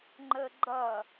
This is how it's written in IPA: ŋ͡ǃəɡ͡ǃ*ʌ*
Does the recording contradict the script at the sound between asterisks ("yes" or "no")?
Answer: no